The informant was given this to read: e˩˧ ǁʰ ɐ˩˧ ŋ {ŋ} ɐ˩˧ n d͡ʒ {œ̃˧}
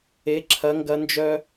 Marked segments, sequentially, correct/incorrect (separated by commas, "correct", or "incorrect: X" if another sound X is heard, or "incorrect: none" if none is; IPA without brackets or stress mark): incorrect: ɡ, incorrect: œ˧